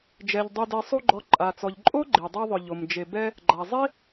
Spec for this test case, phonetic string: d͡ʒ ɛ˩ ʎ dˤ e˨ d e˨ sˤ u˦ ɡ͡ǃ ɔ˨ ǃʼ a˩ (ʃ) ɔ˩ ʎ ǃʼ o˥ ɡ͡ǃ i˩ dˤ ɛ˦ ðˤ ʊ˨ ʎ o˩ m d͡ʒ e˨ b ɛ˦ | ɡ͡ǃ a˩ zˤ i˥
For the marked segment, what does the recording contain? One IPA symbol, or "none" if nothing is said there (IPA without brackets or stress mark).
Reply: t͡s